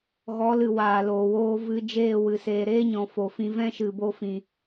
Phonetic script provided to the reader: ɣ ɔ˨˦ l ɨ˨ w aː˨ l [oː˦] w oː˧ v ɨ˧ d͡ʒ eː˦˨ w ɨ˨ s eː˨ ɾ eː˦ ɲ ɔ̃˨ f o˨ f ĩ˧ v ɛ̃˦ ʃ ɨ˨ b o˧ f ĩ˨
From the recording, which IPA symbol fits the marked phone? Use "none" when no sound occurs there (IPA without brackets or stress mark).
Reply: oː˨